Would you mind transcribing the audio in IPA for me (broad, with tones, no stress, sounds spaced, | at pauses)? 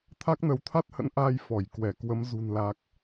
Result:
t̪ʰ a˦˥ k̚ n ə˨˦ w t̪ʰ a˦˥ t̚ h ə̰˧˥ n ʔ aː˧ j f ɔ˧˩ j k w ɛ˧˩ k w ə˨˦ m z ṳ˨˩ n l a˨˩ k̚